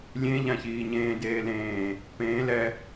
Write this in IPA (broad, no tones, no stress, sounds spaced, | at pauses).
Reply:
lʲ ẽ ʎ ã ç iː ɲ ẽː d eː l ẽː | p ẽː l ɛ